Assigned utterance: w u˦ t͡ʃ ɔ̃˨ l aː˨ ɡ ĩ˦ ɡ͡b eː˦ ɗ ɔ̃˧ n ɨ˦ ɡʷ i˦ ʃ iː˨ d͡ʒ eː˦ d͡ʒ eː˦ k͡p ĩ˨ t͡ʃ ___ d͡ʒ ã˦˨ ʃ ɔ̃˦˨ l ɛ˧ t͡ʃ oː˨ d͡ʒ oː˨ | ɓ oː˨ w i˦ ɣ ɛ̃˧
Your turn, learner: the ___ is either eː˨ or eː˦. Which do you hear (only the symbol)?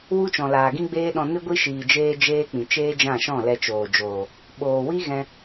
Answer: eː˦